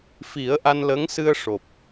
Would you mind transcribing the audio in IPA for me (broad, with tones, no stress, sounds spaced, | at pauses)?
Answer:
f i˨˩˦ ə̯ ʔ a˧ n l ə˧˥ ŋ s ɨ˧ ə̯ ʂ o˨˩ p̚